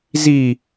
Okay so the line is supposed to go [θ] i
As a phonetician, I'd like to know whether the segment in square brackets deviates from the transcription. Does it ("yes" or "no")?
yes